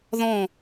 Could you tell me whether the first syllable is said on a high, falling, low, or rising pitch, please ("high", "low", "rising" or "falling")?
falling